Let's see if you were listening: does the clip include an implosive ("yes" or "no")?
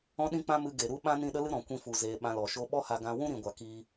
yes